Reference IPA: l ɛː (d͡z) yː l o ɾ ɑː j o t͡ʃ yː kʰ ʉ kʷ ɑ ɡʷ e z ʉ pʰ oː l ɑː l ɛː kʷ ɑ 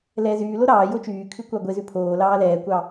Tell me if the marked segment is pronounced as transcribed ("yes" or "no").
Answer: no